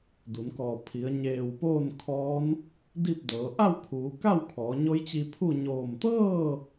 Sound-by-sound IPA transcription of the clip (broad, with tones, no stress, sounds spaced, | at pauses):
d u˩˧ n k ɔː˧˩ pʰ i˩˧ ə̯ ɲ eː˧˩ w p oː˥˨ n kʰ ɔː˧˥ n | d i˥˨ p̚ d ɤː˩˧ ʔ a˥˨ w kʰ uː˩˧ k a˥˨ w kʰ ɔː˩˧ ɲ o˧˥ j t͡ɕ i˧ pʰ u˥˨ ɲ oː˧˩ m t̪ ɤː˥˨